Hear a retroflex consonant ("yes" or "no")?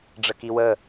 yes